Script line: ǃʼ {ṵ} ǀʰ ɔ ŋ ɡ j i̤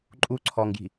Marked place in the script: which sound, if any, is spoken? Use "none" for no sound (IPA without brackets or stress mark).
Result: u